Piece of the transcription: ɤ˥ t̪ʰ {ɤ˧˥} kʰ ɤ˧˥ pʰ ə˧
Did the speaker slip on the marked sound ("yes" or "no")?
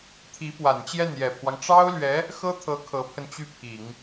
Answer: no